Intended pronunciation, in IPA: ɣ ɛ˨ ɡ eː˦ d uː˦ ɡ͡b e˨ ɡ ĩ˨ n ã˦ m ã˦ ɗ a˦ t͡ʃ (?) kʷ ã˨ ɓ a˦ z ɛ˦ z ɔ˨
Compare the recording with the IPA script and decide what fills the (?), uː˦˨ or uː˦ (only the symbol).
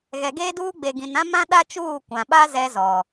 uː˦˨